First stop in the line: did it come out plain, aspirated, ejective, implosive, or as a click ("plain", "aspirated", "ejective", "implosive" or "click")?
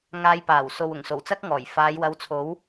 plain